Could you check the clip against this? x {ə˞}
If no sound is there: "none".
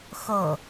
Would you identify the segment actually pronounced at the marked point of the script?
ʌ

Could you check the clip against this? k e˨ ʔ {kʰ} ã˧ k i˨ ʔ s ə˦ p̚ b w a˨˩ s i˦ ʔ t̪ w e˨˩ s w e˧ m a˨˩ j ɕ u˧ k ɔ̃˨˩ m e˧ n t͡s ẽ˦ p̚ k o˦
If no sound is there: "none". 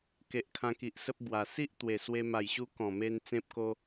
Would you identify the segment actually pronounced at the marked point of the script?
kʰ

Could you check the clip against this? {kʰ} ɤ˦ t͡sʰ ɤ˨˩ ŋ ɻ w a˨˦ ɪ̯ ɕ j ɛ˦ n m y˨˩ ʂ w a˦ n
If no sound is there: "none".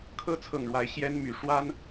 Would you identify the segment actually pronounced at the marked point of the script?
kʰ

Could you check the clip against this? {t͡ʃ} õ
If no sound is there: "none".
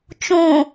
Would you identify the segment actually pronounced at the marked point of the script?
t͡ʃ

